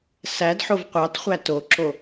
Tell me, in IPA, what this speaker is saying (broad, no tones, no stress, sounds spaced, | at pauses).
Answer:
s æ d ħ o v qʷ ɑ t χʷ æ t o ǁ o